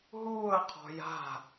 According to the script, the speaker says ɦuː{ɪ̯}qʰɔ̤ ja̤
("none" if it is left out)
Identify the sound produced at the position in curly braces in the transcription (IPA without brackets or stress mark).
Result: ə̯